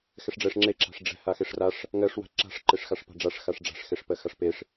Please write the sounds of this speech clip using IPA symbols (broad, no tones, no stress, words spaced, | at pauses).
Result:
xɛʂɖ͡ʐɛʂ ŋ͡ǁe ǁa̤ʂɖ͡ʐɛ̤ haxeʂraʂ | ŋɜʂ wa̤ǁa̤ʂ ǃeʂxaʂpa̤ɖ͡ʐaʂ xaʂɖ͡ʐa̤ʂ xeʂpɜxaʂpeʂ